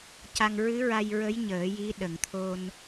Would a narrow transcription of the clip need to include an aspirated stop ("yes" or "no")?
yes